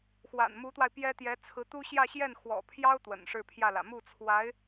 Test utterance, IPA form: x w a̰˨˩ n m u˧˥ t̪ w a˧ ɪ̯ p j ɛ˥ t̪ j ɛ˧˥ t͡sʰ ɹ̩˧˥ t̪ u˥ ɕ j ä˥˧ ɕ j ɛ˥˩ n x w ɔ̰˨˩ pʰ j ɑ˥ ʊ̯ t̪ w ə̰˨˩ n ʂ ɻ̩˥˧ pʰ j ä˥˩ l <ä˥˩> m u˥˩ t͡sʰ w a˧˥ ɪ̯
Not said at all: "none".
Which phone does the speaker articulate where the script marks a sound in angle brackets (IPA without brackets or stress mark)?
ä̰˨˩